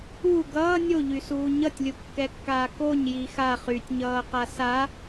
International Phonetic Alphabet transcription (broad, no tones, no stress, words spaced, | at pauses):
u ɡʌː nʲoʎysuː ɲʌtʲlʲukːɛkːaː koɲji xa χytʲɲʌːqa sa